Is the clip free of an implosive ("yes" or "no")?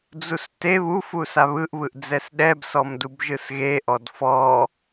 no